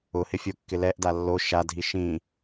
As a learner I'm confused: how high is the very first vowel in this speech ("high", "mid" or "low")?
high